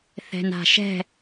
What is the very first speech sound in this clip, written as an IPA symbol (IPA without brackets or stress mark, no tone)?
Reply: θ